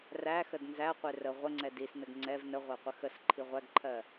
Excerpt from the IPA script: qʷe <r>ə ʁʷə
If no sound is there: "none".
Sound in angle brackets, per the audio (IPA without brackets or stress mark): r